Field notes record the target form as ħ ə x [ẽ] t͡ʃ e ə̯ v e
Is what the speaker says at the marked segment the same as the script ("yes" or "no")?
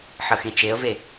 yes